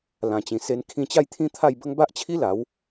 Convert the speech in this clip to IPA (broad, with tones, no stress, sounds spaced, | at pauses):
l ã˨˩ t͡ɕ ĩ˨˩ s e˧ n kʰ ĩ˧ t͡ɕ a˥˧ j t̪ʰ ĩ˦ t̪ʰ a˥˧ j b ə˦ ŋ b a˦ ʔ t͡ɕʰ i˦ l a˨˦ w